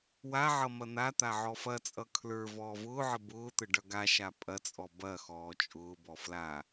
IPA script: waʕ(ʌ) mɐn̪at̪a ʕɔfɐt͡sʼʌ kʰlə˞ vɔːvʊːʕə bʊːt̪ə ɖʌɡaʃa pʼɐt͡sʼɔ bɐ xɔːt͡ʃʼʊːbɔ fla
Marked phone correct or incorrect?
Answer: correct